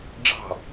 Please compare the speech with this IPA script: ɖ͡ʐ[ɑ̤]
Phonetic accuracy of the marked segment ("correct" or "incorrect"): correct